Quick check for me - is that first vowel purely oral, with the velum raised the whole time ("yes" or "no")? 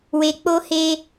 yes